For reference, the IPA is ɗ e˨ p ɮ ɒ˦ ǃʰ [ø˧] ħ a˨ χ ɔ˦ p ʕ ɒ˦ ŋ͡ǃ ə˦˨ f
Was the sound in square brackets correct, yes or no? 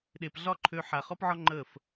yes